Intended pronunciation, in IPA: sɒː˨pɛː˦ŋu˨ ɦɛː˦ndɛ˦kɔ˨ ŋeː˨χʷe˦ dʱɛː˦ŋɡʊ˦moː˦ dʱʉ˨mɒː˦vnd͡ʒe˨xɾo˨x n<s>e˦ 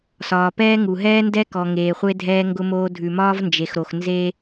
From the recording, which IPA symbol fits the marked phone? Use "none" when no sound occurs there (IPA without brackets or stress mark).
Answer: z